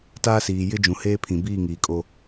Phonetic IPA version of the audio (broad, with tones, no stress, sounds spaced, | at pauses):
t aː˦ s iː˨ j ɪ˦ d͡ʒ ũ˨ h eː˦ pʰ ĩ˨ b iː˦˨ ŋ iː˨ kʼ o˦